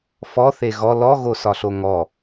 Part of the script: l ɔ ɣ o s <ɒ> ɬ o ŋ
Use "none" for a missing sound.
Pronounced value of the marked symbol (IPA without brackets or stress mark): ɒ